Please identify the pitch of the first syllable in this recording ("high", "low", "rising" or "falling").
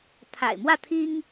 low